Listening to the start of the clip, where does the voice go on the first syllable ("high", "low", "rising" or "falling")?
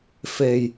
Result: low